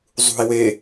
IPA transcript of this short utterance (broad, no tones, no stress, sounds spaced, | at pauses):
zˤ ṳ i̯ w e